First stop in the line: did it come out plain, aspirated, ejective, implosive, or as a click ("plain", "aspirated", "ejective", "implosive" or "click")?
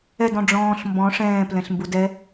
plain